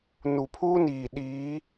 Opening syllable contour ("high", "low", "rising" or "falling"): low